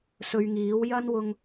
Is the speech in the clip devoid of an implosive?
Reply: yes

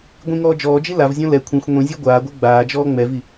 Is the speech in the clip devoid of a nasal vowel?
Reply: no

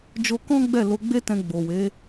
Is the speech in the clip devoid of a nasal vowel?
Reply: no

